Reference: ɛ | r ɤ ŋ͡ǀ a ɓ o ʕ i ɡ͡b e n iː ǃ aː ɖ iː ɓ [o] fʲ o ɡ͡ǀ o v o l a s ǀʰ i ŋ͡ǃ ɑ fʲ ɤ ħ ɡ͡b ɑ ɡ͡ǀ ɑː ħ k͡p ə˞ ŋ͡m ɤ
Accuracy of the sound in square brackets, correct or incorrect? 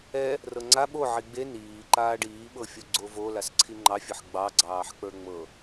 incorrect